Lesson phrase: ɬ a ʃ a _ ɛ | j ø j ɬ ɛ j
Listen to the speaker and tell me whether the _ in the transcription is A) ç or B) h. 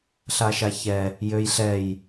A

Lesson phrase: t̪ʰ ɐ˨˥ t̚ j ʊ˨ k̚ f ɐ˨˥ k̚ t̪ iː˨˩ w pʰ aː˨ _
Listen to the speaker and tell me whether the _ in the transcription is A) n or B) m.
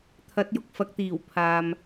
B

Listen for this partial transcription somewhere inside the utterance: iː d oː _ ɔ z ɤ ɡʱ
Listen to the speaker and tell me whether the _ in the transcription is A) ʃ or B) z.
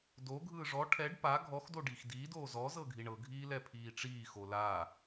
B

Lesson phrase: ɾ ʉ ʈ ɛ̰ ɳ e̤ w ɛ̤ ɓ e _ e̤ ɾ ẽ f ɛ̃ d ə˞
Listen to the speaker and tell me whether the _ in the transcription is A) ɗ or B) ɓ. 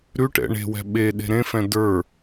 A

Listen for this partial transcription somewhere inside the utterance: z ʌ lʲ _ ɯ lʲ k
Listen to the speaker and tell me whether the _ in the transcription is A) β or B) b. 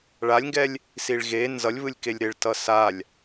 A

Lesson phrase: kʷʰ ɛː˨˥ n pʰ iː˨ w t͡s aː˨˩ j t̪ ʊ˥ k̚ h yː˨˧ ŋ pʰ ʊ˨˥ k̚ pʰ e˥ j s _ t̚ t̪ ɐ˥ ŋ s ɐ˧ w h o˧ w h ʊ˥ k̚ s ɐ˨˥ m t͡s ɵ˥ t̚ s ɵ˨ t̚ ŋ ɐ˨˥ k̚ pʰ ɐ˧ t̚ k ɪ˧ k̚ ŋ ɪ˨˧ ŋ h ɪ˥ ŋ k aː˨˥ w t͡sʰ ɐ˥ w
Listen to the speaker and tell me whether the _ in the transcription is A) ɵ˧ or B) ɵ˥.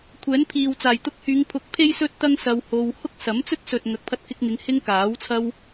B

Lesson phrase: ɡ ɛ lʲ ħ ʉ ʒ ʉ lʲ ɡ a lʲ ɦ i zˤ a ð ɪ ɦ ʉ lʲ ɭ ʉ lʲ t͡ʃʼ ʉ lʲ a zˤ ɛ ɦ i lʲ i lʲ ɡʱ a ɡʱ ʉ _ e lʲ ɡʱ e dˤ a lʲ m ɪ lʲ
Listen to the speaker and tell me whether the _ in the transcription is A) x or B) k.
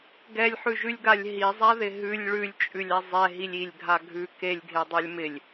B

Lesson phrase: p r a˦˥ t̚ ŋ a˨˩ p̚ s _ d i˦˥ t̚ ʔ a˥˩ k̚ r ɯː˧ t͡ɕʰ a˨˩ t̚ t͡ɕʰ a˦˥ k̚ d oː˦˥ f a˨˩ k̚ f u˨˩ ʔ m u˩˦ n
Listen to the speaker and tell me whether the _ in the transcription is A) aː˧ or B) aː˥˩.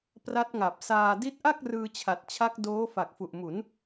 A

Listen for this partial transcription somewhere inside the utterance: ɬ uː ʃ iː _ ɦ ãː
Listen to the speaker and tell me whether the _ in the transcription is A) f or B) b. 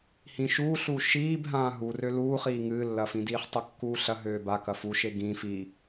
B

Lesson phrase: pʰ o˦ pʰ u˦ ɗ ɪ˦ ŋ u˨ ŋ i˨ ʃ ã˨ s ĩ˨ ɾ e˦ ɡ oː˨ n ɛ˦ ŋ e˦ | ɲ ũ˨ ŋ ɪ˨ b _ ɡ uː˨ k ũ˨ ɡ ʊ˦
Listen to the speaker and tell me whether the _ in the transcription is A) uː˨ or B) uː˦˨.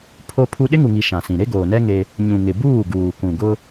B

